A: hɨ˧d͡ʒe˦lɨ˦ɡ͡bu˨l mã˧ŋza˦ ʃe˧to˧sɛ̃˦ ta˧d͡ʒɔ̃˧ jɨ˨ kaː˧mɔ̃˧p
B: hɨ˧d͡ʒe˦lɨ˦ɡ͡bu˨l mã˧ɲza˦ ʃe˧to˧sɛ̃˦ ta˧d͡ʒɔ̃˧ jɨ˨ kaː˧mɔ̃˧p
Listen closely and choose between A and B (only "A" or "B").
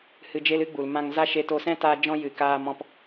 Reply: A